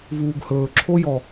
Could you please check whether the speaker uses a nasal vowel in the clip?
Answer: no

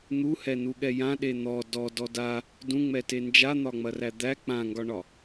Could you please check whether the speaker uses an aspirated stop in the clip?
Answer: no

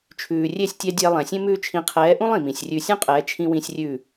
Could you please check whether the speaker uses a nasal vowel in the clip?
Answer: yes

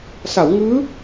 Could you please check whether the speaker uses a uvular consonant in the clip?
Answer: no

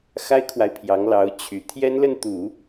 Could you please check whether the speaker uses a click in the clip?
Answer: no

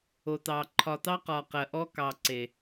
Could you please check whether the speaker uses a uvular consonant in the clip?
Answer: yes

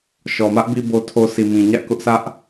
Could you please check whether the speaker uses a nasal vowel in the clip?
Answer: yes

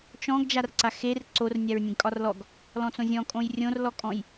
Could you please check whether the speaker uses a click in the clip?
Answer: yes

